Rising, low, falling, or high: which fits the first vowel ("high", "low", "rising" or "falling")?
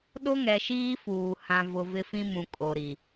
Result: high